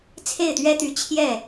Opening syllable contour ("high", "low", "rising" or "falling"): falling